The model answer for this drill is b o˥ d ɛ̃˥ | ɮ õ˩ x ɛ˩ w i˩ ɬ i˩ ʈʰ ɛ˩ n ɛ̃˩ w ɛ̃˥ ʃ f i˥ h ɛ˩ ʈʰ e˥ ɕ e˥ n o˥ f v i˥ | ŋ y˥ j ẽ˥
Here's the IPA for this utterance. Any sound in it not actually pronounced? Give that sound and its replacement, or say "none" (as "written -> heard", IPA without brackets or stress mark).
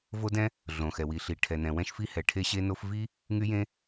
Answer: b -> v